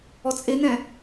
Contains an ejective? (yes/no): yes